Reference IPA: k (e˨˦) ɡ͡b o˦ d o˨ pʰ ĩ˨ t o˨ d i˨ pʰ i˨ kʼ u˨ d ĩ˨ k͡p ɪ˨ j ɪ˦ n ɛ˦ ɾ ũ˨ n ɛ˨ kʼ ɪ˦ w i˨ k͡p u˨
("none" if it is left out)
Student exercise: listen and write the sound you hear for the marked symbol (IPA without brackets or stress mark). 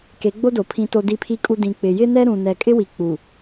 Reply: e˨˦